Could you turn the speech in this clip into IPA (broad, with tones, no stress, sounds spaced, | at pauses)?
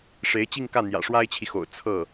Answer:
ʂ e˧˥ ɪ̯ t͡ɕ i˥˧ ŋ k ä˥˩ n̪ j ä̰˨˩ ʂ w a˥ ɪ̯ t͡ɕʰ i˨ x o̰˨˩ ʊ̯ t͡sʰ ɤ˥˩